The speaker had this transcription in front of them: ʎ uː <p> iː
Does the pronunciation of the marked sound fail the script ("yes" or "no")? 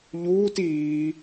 yes